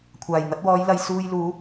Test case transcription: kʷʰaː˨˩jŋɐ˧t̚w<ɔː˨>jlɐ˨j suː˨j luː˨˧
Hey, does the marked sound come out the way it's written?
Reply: no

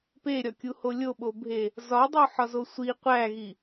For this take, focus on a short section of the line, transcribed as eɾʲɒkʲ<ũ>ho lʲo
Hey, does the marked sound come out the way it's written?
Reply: no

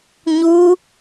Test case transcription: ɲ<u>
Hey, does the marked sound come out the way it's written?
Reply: yes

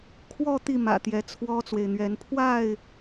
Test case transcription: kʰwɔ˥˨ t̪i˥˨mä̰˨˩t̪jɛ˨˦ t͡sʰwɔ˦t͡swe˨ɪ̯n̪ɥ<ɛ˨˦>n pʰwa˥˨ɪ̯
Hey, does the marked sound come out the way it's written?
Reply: yes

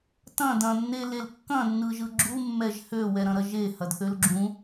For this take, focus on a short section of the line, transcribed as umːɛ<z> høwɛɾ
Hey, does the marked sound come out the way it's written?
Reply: no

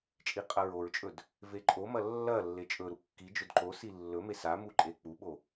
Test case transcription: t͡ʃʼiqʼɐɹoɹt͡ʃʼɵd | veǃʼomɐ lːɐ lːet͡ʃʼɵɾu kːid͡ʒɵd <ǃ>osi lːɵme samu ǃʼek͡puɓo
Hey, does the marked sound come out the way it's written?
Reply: yes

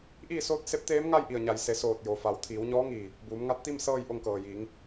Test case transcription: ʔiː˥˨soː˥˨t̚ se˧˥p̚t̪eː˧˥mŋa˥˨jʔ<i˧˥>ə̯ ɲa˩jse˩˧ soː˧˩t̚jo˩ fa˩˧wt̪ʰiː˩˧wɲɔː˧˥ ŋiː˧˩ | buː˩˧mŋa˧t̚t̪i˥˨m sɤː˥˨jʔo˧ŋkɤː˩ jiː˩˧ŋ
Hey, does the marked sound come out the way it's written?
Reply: no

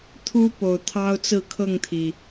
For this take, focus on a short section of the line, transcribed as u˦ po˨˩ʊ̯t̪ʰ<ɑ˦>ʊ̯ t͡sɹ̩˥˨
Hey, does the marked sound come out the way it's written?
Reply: yes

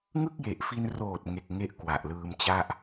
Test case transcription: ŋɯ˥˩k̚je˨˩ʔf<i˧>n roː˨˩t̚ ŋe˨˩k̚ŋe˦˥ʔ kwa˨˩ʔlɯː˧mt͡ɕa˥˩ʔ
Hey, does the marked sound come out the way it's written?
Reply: yes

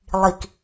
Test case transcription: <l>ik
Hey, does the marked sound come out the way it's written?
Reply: no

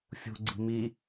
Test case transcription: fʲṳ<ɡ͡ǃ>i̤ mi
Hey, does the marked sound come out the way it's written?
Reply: no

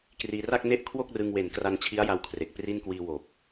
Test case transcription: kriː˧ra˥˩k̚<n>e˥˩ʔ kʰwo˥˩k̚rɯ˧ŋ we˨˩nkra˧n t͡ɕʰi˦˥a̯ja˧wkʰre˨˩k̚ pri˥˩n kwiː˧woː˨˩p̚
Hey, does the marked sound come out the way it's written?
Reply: yes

